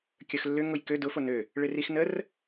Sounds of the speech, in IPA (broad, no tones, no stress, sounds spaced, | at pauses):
kʲ œ x lː ʏ ŋ ʊ j k ø d ʊ f o n ø | ɭ ɪ r i x n ə r